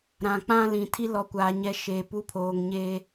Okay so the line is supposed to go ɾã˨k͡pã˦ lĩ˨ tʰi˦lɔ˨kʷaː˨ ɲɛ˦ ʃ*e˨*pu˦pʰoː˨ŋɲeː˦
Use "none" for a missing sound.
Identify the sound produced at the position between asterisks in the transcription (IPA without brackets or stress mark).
eː˨